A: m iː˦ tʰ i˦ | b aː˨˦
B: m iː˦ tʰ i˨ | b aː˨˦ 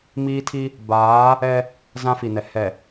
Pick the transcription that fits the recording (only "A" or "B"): A